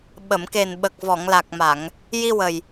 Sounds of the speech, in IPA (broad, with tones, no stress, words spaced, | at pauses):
ɓə˨˩˨mke˨˩n ɓə˨˩k̚vɔ˨˩˨ŋla˨˩k̚ma˨˩˨ŋ | ji˧wə˨˩j